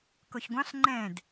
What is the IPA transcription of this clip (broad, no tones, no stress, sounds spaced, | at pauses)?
k o ç ɡʷ ɑ̃ ɬ ŋ͡ǃ ɛ̃ d